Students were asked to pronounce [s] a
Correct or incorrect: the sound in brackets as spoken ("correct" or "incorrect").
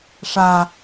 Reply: incorrect